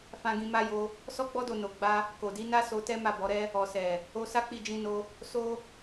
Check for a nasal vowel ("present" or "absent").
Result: present